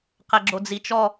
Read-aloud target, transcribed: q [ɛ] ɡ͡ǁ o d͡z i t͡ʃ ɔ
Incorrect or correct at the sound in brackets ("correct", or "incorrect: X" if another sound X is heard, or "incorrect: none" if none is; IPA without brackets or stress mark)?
correct